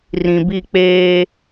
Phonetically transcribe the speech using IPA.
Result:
rĩ˨bi˦˨k͡peː˦

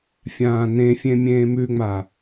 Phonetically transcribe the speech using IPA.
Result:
fʲãːnẽfʲẽ mʲẽːmʉŋ͡ma

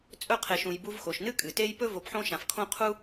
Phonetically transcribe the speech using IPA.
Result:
t͡sʼɵ˦qʰe˨ʃũ˨j bu˦vxo˩ʃ nɨ˥kʼɨ˩ te˦jpɵ˥ vo˨pħõ˦ʃã˩fkʰõ˥ qʰu˥

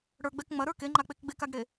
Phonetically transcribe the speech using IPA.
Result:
ɽə˞ɡ͡bɛk ŋ͡mɐɾə˞ keŋ͡ǃak͡pek ɡ͡bekaɡɽe

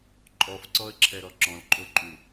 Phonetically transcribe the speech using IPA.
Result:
ǃʼɔfǀɔə̯ǁʰɛɾɔ ǁɔ̃lǃʼoǃʼu

